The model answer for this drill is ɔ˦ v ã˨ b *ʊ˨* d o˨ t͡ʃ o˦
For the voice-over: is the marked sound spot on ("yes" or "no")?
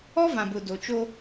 yes